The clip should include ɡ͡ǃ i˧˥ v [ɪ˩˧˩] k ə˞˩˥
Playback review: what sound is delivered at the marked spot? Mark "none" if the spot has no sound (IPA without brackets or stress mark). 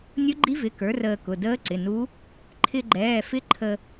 ɪ˩˧˩